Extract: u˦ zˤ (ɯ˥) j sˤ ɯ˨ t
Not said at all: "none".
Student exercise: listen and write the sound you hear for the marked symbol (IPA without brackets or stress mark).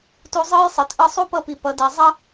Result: ɯ˥